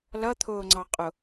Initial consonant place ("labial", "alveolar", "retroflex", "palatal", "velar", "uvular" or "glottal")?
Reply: alveolar